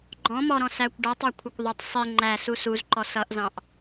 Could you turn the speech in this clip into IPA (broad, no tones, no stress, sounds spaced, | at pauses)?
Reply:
ɡ͡ǃ ɔ̃ m ɔ ɾ ɔ̃ s æ kʷ ɖ ʌ tˤ ɑ kʷʰ ʌ kʷ ðˤ ʊ tˤ sˤ i ŋ͡ǃ æ s u s u z ǃ ɔ s ʌ ʔ z ɑ̃ ʔ